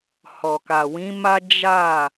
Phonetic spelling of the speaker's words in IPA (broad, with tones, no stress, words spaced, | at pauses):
hɔ˨ka˨wĩ˨˦ma˦ d͡ʒa˦˨